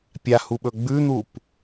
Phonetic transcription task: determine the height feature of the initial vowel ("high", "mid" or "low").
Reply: low